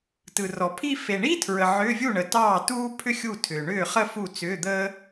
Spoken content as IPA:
t ɯ˨ r ɔ˨ pʰ i˥˧ f e˨ ɳ i˥ tʰ ɹ ə˨ ʕ ʏː˧˥˧ vʲ u˥˩ ɳ ə˨ t ɑː˥˩ t uː˥ pʰ ʏ˥ xʲ u˥˩ tʰ ʏ˨ ɳ ʏː˥˩ χ ə˥˧ f u˥˩ t͡s ʏː˧˥˧ d̪ əː˥

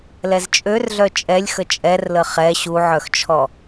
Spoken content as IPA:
l ɛ z t͡ʃʼ ø r ɮ œ t͡ʃʼ ɛ lʲ x ə t͡ʃʼ ɛ r l ə χ ɛ ɕ u ʕ œ x t͡ʃʰ ɔ

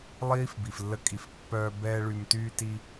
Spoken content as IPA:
lˠ iː˦ f b i˨ f lː ə˧ kʼ i˨ f pː œː˧ b ɛː˦ ɭ y˧ m t yː˧ t i˧

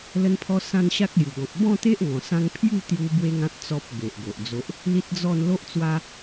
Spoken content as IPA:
l ə˦ n pʰ ɔ˦ s ã˦ n ɕ a˦ k̚ l j u˨˩ ɡ ɔ̃˨ k̚ b ɔ̃˥˧ t̪ e˦ ʔ ŋ ɔ̃˨˩ s ã˧ ŋ pʰ j u˥˧ t̪ j u˧ b w e˦ ŋ ã˦ t̚ t͡s ɔ˦ p̚ b e˨ ʔ ɡ o˨ ʔ d͡z o˦ ʔ | l i˦ t̚ d͡z ɔ˥˧ n l o˦ ʔ t͡s w a˦

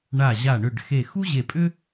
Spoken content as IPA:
ɳ a˧˩ ʑ a˧˩ ɳ ʏ˧˩ ɖ x e˧˩ x u˥ ʑ e˧˩ pʼ ʏ˥

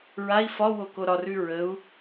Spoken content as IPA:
ɹ a i̯ f ɒ w o k o ɾ ɒ r ʉ ɹ ə u̯

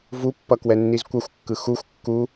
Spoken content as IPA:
v u pː ʌ k w ɛ nː i z kʷ ʌ xʷ kː ɯ x u xʷ kː u

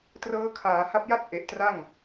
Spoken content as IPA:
t r ɤː˦˥ kʰ aː˩˦ h a˦˥ p̚ j a˥˩ t̚ ʔ e˨˩ ʔ t r a˥˩ ŋ

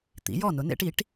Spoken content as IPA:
t̪ ḭ˩˥ j ɔ˥˩ n ʊ˩˥ n ḛ˧˥ ʈ i˩˥ ʈ

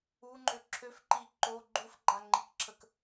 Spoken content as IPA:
u ŋ͡ǃ ø ǁʰ ø f ǃ i ǃ o ɡ͡ǃ u f ɡ͡ǃ a ŋ͡ǃ i k ǁʰ ə k

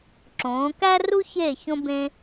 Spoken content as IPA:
ǁ õː˩˧ k æ˥ r u˥ ç e˧˩ ç õ˧ b ẽ˧

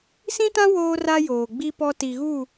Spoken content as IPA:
s ĩ˦ t ã˦ w oː˦ r a˦ j oː˨ ɡ͡b i˦ p ɔ˦ t i˨ ɣ u˦˨

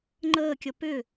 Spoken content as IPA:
ŋ͡ǃ əː kʲ ʌ p ʏ

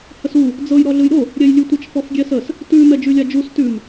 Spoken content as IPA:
h ə s u | d͡z ɤ j ɾ ɔ ɮ ɯ j ɾ o | ɾʲ ɛ j lʲ ʉ tʷ ə t͡ʃ f ɔ f ɡʲ ɛ s ə s | t ʉ m ɛ d͡ʒ ʉ lʲ a d͡ʒ u s t ʉ m

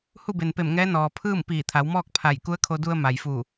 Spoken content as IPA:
h u˥˨ b e˩ n p e˧˩ m ŋ ɛː˧˥ n ɔː˩ pʰ ɯː˥˨ m p iː˧˩ t̪ʰ a˩˧ w m ɔː˥˨ k̚ pʰ a˧˩ j k u˧˥ ə̯ kʰ o˧ d u˧ ə̯ m a˩ j f u˧˩

